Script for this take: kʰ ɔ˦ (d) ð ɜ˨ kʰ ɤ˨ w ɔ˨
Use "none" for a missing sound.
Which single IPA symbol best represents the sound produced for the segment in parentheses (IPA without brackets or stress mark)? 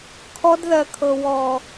d